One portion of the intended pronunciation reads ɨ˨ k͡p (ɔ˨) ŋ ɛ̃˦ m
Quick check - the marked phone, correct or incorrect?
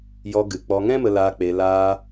incorrect